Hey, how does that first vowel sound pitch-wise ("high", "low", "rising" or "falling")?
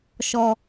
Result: low